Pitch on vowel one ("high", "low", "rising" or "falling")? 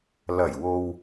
low